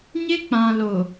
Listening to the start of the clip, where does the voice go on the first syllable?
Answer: high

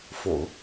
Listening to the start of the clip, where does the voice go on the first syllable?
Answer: low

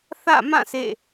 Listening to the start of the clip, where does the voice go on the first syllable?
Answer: falling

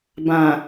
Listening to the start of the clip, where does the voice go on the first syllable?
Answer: low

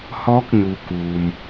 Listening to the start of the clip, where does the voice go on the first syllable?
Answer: rising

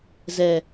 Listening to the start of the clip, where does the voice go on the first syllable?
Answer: falling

